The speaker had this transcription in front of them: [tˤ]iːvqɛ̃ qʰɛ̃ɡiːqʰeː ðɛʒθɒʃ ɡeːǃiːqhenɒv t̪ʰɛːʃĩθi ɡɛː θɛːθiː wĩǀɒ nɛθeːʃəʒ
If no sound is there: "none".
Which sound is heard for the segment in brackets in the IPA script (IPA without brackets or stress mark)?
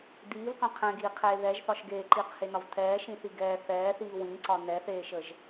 d̪